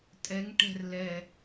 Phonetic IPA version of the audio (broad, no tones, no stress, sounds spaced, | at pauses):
tʼ ɛ ŋ ʈ ɛ̤ r l ɛ